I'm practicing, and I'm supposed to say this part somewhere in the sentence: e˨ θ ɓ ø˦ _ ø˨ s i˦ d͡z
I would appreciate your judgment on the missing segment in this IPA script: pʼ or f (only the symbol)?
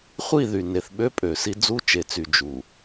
pʼ